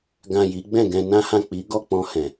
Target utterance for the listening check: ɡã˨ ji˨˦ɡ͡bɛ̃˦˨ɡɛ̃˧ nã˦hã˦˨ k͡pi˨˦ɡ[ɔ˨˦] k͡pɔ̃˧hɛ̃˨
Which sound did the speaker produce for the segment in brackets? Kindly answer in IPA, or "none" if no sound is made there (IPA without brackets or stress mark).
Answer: ɔ˦˨